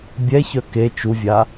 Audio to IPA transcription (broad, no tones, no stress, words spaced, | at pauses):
bʲɛçœ ke t͡ʃuvʲa